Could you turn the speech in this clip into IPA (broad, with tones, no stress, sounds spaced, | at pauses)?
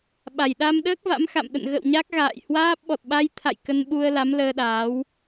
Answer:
ɓ a˧˩ j ɗ a˧ m ɗ əː˦˥ k̚ v a̰˧˥ m x a̰˧˨ m ɗ ə̰˧˨ n ɣ ə̰˧˨ w ɲ a˦˥ k̚ ɣ a̰ː˧˨ j h w aː˦˥ p̚ ɓ ɔ˨˩ t̚ ɓ a˧ j t̪ʰ a̰˧˨ j k ə˧ n ɓ u˧ ə̯ l a˨˦ m l əː˧ ɗ aː˨˦ w